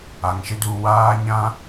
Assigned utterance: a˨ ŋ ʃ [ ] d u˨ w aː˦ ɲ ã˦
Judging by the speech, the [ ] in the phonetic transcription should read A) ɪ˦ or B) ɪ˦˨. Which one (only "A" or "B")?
A